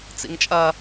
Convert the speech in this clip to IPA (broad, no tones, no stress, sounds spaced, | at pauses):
t͡s ḭ ŋ t͡ʃʼ ɐ